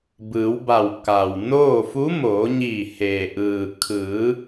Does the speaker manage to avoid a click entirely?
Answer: yes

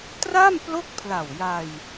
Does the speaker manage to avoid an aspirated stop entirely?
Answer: no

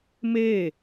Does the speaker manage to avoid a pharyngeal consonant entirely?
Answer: yes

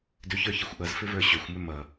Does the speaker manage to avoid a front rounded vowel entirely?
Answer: no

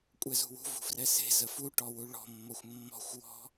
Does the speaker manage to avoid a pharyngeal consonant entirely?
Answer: yes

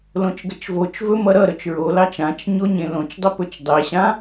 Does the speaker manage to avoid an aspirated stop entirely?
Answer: yes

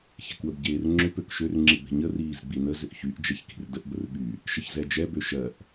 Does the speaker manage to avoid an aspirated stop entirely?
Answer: yes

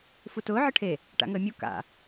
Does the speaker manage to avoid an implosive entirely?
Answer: yes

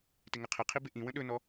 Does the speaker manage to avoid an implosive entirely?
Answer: no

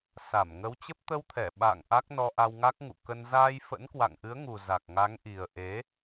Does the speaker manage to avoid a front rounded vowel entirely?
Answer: yes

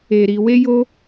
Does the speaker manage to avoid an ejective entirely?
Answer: yes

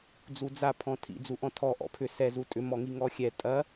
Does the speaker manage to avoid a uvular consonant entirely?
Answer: yes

